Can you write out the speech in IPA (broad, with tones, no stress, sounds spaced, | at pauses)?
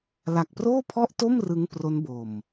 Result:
l a˨˩ k̚ p r oː˥˩ pʰ ɔ˥˩ ʔ t o˥˩ m r ɯ˦˥ ŋ p r o˦˥ n b o˨˩ m